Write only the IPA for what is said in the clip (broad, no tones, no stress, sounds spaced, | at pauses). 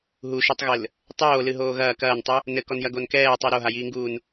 ɦ u ʃ i tˤ ɣ ɘ l | tˤ oː l ɨ ɦ oː ɣ ɐː k ɐː n tˤ u | n ɘ k ɔ n j ɐ ɡ o n k ɛː tˤ u ɾ o ɦ a j iː ŋ ɡ uː n